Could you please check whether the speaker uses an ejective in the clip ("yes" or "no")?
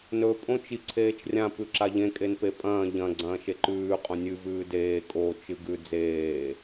yes